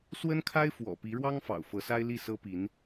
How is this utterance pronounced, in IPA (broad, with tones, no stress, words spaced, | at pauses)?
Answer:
swə˥nkʰa˥ɪ̯fwɔ̰˨˩ pi˧˥ɻwɑ˥ŋfɑ̰˨˩ʊ̯ fɤ˧˥sa˥ɪ̯li˥˩ sɤ˥pi˧˥n